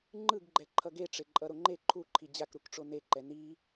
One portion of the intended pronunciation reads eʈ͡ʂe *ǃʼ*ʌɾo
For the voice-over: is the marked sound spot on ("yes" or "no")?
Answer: yes